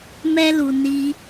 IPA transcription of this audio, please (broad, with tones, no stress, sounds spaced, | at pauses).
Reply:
m ɛ˦ l u˧ n i˦